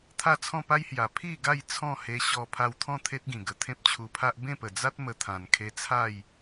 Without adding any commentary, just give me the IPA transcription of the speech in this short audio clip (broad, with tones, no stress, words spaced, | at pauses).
t̪ʰa˥˧t͡sʰɔ̃˥˧pa˦jhja˨˩ pʰi˥˧ɡa˥˧j t͡sʰɔ̃˥˧he˧ ɕɔ˧pʰa˧wt̪ʰɔ̃˥˧ t̪ʰe˦t̚ɡĩ˨˩ ɡə˨˩t̪ʰẽ˦p̚t͡ɕʰu˧pʰa˦ʔ bẽ˥˧pə˨˩d͡za˦t̚ mə˧t̪ʰã˨˩nkʰe˧ t͡sʰa˥˧j